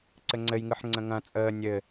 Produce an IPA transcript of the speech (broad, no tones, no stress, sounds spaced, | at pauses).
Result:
ǀ ɘ ŋ͡ǀ ɘ j ŋ ɯ ħ ŋ͡ǀ ə̃ ŋ ɐ̃ t͡sʼ əː nʲ ɘ